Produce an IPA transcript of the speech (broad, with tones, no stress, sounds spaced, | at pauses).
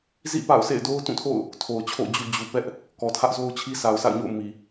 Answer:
z ḭ˦˨ p a̰˦˨ ʊ̯ s ḛ˦˨ ɪ̯ d o˦ ʊ̯ t ũ˦˨ tʰ o̰˦˨ ʊ̯ | tʰ o˨ ʊ̯ t͡ɕʰ o̰˦˨ ʊ̯ d͡ʑ u˨ d͡ʑ u˨ p ɛ˦ ʔ | k ɔ˨ tʰ ä˦ ʔ z o˦ ʊ̯ t͡ɕʰ i˦ s a˨ ʊ̯ s a̰˦˨ ʊ̯ ɲ o̰˦˨ ʊ̯ m i˨